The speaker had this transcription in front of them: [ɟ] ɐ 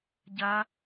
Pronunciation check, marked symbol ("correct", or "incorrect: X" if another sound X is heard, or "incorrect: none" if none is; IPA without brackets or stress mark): correct